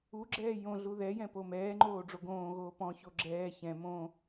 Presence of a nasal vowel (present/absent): present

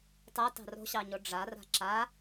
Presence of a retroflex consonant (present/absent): present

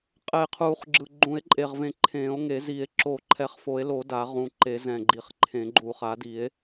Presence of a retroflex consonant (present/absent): absent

